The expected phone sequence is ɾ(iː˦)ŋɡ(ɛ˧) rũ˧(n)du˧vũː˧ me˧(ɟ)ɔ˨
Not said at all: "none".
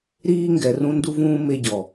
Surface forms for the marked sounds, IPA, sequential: iː˦, ɛ˨, n, ɟ

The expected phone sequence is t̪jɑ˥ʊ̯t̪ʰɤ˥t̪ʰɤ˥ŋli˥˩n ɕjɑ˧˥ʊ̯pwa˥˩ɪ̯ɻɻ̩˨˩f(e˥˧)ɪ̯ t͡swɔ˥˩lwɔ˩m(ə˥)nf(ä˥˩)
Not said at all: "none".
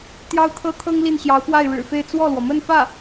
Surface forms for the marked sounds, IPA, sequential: e˥˧, ə˥˧, ä˥˩

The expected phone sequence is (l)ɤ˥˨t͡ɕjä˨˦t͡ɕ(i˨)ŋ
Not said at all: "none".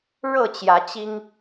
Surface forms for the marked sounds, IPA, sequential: ɻ, i˦

